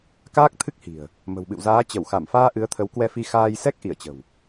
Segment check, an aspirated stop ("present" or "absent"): present